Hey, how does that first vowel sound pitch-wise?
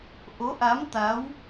rising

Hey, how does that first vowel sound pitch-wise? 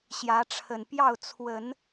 rising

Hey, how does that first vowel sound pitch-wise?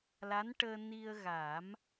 rising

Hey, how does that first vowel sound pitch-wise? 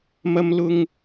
high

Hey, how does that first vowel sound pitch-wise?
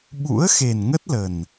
rising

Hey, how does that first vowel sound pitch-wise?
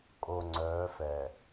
low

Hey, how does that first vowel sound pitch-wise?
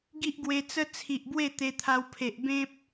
high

